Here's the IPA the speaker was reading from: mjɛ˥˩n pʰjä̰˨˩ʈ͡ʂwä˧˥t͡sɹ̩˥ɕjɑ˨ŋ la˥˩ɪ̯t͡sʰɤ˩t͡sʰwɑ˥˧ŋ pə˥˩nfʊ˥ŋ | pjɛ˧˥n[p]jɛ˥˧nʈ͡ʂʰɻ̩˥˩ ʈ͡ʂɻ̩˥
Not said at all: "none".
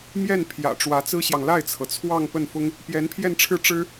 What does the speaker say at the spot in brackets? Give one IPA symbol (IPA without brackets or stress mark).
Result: pʰ